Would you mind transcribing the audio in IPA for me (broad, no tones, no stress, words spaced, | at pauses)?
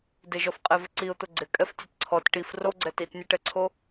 dɪʒɔfqʼevɪ ǀiʊ̯t̪ʊ ɡ͡ǀɪkʼɛftʲɛt ǀʰɔt ʈif roɡ͡ǀɛ titnʲʊʈɛǀʰo